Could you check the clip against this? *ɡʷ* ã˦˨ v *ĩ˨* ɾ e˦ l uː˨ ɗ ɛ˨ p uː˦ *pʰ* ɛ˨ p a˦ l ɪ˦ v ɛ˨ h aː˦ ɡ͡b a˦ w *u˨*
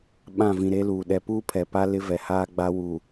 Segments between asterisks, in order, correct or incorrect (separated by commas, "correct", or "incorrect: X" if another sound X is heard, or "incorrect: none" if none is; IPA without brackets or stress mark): incorrect: ɓ, correct, correct, correct